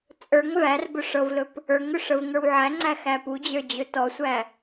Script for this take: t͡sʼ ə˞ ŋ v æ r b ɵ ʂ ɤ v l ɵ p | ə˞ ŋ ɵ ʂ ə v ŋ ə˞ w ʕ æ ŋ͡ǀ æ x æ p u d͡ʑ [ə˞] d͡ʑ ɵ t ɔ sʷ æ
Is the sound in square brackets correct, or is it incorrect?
correct